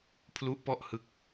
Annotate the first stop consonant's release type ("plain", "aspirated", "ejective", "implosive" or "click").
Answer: aspirated